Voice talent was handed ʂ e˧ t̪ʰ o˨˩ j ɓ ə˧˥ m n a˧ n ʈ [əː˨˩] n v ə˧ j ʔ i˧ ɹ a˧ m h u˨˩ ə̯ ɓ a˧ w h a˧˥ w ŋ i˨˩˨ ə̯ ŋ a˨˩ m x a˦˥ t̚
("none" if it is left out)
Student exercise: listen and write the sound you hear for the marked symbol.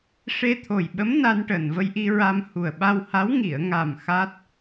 əː˨˩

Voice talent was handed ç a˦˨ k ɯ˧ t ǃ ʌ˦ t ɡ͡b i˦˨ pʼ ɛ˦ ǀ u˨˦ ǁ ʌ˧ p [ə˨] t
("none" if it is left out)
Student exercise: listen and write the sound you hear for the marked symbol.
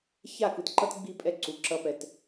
ɛ˨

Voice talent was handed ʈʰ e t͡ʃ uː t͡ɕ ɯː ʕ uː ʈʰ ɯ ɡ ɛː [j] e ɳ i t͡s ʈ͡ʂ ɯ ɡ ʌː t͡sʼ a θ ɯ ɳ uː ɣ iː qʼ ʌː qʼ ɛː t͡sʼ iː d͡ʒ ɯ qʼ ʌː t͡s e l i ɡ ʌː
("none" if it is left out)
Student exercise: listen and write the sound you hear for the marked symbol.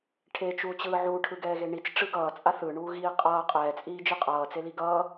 ɣ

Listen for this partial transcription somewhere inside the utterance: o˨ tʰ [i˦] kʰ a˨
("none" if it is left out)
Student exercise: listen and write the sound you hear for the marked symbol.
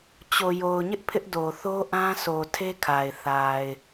e˦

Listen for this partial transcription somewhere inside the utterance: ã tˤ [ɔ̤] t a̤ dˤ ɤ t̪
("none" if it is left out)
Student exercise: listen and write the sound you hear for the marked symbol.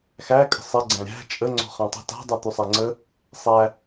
ə̤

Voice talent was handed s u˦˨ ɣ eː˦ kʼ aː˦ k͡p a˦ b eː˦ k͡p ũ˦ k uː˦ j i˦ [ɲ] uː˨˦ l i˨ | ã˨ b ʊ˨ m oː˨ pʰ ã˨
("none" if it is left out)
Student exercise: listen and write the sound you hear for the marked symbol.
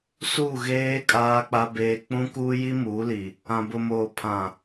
m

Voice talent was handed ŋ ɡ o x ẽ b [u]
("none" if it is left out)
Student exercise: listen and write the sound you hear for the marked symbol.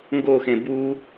u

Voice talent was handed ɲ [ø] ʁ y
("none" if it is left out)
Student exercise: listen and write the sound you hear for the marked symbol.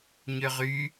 ø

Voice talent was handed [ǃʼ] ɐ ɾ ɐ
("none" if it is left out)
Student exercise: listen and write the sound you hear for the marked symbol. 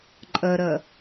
ǃʼ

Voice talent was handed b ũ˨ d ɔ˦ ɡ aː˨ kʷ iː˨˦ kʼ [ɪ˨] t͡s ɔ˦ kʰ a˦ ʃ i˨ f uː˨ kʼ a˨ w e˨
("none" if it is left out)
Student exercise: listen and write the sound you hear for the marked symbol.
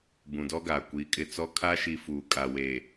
ɪ˨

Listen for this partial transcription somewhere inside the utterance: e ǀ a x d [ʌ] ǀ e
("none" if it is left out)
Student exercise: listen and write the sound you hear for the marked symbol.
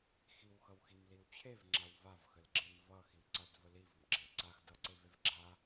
ʌ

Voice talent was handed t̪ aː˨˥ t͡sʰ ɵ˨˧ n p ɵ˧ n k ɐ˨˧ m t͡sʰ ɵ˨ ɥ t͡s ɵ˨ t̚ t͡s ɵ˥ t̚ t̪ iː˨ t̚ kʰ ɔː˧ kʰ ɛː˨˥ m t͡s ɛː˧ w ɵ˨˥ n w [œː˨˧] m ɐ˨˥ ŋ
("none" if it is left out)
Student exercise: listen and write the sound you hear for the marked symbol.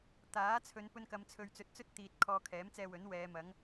ɛː˨˧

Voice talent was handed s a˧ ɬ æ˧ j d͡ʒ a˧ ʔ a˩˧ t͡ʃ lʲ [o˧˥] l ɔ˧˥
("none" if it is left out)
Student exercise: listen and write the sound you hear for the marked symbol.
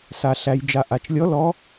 ɔ˧˥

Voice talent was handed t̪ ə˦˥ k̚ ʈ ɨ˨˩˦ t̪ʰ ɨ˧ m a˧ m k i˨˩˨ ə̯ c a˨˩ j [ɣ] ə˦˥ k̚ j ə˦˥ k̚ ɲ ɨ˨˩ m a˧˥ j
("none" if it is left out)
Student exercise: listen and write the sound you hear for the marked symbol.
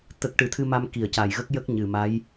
ɣ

